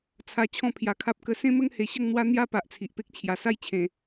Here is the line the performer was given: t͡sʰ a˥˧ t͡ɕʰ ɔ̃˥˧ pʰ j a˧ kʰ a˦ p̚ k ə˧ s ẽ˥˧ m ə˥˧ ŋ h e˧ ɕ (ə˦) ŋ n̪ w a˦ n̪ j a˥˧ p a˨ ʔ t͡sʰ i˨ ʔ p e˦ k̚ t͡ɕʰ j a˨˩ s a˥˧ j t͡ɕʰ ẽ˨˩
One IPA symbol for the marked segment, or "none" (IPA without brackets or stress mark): ə˥˧